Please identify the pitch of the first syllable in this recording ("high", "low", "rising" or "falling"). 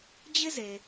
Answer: high